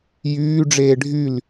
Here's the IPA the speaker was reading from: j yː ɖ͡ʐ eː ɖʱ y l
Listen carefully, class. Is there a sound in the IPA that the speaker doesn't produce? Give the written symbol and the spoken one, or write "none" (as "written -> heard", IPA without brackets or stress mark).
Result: none